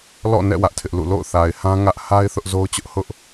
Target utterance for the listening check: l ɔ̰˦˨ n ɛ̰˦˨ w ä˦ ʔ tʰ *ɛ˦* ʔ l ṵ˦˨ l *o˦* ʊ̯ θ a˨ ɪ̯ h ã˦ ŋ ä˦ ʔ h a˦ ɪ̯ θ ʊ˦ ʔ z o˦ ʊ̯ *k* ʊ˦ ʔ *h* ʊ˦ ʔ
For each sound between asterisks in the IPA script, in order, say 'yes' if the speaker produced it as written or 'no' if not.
no, no, no, yes

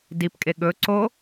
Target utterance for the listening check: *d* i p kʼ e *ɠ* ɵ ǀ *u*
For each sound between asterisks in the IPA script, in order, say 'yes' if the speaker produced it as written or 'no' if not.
yes, yes, no

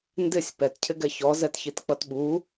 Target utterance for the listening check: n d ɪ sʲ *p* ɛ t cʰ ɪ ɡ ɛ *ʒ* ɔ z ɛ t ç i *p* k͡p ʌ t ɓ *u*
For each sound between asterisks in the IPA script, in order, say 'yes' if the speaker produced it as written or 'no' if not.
yes, no, no, yes

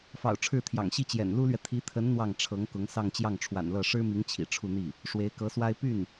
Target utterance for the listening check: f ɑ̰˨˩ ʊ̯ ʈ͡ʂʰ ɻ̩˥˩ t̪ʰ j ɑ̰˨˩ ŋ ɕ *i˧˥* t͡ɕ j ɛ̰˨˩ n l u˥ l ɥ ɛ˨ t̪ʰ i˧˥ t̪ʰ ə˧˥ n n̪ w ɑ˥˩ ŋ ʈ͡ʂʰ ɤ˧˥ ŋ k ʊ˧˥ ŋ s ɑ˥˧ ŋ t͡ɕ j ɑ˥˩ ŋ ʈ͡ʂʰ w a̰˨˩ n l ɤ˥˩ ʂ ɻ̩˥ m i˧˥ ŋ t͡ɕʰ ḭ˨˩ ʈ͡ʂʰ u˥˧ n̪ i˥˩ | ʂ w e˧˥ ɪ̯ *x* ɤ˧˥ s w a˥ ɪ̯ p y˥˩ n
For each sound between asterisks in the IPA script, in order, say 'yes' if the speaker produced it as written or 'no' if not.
no, no

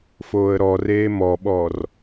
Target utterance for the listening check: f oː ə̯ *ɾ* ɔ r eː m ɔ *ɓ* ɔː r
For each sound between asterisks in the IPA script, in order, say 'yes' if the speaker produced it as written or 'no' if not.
yes, yes

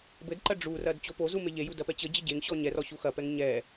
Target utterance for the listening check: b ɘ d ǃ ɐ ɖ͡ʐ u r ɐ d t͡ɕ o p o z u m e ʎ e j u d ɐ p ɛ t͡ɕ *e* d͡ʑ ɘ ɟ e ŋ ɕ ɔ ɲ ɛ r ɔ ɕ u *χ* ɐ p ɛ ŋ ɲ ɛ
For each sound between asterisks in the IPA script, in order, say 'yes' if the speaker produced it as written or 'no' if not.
no, no

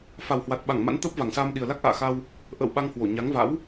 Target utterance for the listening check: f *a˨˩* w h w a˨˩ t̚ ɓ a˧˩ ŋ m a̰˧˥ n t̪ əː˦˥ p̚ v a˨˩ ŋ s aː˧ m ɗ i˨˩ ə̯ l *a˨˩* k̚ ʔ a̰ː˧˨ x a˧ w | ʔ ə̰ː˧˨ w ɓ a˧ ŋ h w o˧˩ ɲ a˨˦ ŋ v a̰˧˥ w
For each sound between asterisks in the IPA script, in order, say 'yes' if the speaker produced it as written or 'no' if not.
yes, no

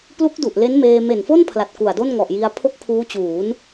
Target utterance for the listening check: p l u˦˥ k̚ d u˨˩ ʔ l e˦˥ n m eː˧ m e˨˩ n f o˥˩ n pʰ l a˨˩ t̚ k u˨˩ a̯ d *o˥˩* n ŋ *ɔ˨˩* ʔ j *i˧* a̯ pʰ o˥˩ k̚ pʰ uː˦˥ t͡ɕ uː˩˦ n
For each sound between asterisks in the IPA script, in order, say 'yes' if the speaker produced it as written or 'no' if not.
yes, yes, yes

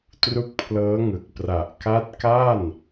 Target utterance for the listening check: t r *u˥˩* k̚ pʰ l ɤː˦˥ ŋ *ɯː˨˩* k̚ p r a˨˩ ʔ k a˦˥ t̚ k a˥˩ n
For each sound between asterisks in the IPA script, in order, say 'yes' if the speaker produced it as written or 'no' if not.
no, no

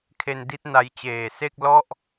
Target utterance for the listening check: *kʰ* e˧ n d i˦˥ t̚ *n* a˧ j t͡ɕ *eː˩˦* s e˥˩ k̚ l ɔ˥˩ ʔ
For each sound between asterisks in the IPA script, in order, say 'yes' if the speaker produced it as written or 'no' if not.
yes, yes, no

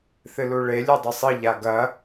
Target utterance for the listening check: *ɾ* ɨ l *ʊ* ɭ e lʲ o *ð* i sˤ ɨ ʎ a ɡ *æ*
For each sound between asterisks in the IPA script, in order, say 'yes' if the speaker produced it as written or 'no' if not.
no, no, no, no

